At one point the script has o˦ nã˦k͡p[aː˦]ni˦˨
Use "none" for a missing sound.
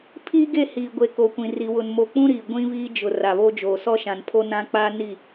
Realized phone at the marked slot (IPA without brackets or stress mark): aː˦